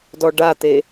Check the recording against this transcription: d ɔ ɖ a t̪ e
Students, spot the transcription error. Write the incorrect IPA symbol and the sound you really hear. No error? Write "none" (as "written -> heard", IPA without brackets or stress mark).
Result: none